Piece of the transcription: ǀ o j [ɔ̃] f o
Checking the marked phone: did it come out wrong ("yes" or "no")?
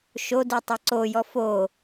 yes